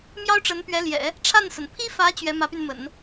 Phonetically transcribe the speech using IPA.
mjɑ˥ʊ̯ʈ͡ʂə˧˥npɥɛ˧˥ljɛ̰˨˩˦ | ʈ͡ʂʰa˥˩nsə˩n pʰi˥fä˧˥ t͡ɕɥɛ˧˥mä˧˥py˧nmə̰˨˩˦n

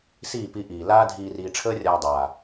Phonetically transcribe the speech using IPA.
siː˦˨pi˧ʔiː˨ laː˧ dʱiː˨riː˨ʈ͡ʂʰəː˧rʲaː˨ dˤaː˨

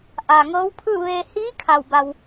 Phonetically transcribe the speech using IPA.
ʔa˩ŋɤː˧˥wpʰɯː˥˨ʋeː˧ hiː˧˥ kʰa˧˩wba˧w

